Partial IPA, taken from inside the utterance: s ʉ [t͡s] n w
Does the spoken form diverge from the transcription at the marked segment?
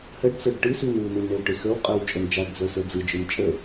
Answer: yes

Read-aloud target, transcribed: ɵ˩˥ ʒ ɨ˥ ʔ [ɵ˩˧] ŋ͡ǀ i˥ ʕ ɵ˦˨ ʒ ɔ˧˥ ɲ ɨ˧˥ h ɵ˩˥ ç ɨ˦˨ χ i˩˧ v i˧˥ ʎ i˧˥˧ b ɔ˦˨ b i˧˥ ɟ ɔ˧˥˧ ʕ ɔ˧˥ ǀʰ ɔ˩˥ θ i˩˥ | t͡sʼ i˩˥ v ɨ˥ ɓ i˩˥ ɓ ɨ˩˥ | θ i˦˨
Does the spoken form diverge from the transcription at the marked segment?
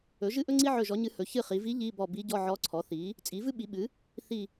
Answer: yes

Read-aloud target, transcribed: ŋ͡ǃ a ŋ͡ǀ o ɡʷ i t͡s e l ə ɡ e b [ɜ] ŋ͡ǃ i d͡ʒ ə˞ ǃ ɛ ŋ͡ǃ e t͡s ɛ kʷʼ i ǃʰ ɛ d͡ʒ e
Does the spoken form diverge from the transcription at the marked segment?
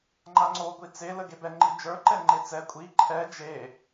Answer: yes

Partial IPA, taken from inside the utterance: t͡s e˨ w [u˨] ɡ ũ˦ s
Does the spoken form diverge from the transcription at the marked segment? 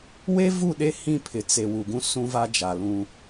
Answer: no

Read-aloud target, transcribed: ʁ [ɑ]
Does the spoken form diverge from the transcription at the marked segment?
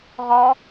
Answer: yes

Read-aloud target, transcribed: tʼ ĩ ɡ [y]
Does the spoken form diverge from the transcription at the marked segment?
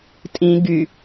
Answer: no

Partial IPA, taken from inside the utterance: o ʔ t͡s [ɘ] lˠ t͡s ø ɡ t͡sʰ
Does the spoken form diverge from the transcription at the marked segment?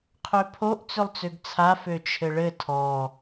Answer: yes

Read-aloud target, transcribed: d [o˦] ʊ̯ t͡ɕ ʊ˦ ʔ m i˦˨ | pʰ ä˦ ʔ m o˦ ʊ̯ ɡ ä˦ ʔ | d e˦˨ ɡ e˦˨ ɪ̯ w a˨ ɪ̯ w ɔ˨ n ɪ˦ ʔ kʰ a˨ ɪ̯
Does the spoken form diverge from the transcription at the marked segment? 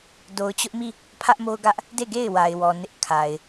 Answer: yes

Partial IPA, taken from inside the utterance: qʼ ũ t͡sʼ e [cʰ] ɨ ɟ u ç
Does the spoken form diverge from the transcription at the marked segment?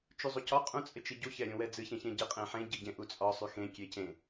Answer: yes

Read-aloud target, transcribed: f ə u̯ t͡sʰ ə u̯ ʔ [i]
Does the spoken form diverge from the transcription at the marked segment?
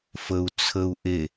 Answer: yes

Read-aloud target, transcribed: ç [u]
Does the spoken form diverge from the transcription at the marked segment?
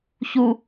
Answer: no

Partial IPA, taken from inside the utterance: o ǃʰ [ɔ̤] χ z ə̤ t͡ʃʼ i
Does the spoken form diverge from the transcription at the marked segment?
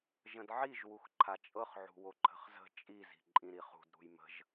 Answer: yes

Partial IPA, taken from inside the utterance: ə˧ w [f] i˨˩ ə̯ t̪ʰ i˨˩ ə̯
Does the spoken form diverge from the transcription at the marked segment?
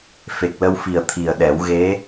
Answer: no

